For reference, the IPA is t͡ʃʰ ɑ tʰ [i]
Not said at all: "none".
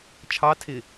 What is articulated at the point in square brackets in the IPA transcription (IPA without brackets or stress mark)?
ɪ